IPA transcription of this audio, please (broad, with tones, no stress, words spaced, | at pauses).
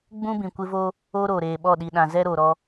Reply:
ɡ͡bũ˦bĩ˨kʷɪ˦vo˦ | o˦ ɾoː˨ɾeː˨ɓɔ˦˨ ɗi˨ɗã˨zɛ˦ɾo˨ ɾɔ˦